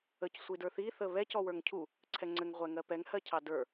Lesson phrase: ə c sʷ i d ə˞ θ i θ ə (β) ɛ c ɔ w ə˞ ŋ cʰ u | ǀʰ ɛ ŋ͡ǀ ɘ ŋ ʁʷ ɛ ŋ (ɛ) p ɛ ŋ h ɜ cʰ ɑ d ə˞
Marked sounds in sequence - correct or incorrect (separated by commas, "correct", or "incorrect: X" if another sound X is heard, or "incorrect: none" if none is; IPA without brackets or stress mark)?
correct, incorrect: ɜ